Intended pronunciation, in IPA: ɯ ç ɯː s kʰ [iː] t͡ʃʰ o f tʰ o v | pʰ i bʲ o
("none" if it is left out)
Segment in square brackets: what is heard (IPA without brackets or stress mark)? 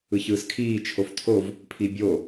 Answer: iː